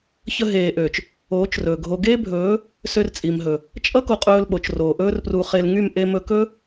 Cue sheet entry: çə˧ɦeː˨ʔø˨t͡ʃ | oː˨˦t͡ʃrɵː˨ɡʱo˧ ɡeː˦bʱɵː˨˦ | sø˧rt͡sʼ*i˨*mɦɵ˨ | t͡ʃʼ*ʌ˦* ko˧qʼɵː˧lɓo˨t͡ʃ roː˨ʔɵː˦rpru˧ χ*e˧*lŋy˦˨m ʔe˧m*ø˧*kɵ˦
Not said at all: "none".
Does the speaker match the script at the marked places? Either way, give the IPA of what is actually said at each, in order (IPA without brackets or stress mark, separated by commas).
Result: i˨, ʌ˦, e˧, ɵ˧